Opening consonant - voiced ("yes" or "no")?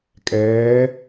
no